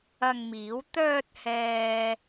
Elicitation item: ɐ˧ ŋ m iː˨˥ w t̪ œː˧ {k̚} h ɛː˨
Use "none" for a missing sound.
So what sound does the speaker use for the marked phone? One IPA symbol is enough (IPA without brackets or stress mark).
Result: t̚